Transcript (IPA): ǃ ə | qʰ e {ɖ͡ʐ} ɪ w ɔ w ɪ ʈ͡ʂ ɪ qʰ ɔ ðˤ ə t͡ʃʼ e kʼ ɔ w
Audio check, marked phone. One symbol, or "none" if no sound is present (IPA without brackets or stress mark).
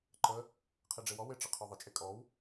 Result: ɖ͡ʐ